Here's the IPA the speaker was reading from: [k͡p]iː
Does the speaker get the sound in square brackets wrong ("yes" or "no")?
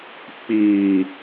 no